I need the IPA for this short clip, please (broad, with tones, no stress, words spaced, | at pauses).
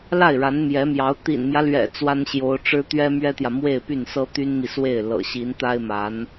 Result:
la˥˩ɪ̯ɻa˧˥nmjɛ˧˥mjɑ˧˥ʊ̯ t̪ḭ˨˩nmjä˦lɥɛ̰˨˩ t͡swa˥nɕjo˧˥ʊ̯ʈ͡ʂɻ̩˥ t̪ɥɛ˥mɥɛ˥t̪jä˨ mwe˥˧ɪ̯py˥˩nsɤ˥ t̪y˥nmi˨swe˥˩ɪ̯ lɤ̰˨˩ɕi˧˥nt̪a˥ɪ̯ma˧˥n